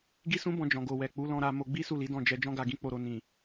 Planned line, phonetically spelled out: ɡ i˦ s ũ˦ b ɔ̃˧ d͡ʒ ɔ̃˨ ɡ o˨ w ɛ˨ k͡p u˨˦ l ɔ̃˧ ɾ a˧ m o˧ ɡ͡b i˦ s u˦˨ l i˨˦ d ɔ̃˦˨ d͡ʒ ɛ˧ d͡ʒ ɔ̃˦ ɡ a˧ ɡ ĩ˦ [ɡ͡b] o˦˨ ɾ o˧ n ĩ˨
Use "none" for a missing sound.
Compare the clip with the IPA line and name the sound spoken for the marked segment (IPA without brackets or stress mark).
k͡p